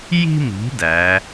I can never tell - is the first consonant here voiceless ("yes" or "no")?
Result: no